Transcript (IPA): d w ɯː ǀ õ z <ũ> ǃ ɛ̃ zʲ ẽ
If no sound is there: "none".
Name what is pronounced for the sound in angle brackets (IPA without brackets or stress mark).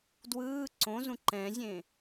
ũ